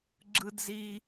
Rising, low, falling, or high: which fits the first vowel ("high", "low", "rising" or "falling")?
high